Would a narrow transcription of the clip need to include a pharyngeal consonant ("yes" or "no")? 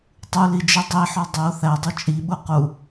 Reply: yes